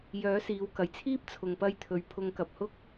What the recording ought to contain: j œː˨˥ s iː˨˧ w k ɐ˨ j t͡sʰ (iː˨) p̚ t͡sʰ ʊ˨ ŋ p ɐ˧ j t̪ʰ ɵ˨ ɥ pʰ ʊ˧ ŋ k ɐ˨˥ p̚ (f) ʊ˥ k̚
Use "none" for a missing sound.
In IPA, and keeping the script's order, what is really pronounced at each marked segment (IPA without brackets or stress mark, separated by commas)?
iː˥, h